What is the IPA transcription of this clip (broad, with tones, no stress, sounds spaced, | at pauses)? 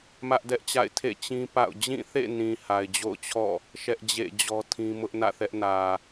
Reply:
m ä˦ ʔ d ɛ˦ ʔ t͡ɕ a̰˦˨ ɪ̯ tʰ ḛ˦˨ t͡ɕ ĩ˦ p a̰˦˨ ʊ̯ d͡ʑ ĩ˦˨ θ ḛ˦˨ n ĩ˨ h a˨ ɪ̯ d͡ʑ o̰˦˨ ʊ̯ t͡ɕʰ ɔ̰˦˨ | ʃ ɛ˦ ʔ d͡ʑ ḛ˦˨ d͡ʑ ɔ˦ tʰ ĩ˦ m ʊ˦ ʔ n ä̰˦˨ θ ɛ˦ ʔ n ä˨